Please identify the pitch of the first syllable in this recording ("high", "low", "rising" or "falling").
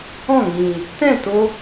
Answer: falling